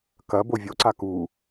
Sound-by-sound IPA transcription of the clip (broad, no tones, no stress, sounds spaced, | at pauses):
k ɐ b o vʲ o ǀ a k u